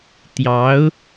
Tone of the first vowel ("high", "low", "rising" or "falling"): rising